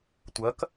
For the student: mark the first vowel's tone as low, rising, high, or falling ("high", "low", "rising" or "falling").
rising